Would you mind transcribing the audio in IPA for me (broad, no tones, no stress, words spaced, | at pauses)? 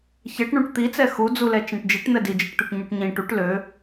çɛʈ ɳũʈt̪it͡sɛ xud͡zulɛ t͡ʃɛ̃ʈd͡ʒiʈn̪ɛ did͡ʒiʈt̪øʈ ɲuʈɲĩ ʈuʈ lø